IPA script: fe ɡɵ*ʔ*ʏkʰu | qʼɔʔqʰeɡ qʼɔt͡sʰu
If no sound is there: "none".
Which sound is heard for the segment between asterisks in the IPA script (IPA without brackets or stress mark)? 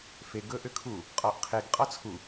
ʔ